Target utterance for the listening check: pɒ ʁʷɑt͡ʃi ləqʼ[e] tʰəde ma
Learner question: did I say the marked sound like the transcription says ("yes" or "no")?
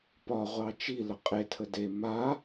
yes